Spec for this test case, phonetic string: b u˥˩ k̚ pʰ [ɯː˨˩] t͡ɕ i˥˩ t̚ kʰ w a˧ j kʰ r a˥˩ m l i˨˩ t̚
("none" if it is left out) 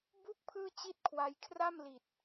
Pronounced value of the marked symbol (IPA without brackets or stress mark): ɯː˥˩